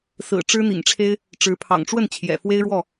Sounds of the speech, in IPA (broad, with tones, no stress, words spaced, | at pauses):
sɹ̩˨˩ ʈ͡ʂɻ̩˦n̪ḭ˨˩ŋʈ͡ʂʰe˦ɪ̯ | ʈ͡ʂɻ̩˨˦pʰɑ̰˨˩ŋʈ͡ʂwə˥˨n t͡ɕʰjɛ̰˨˩fwe˦ɪ̯ɻwɔ˥˨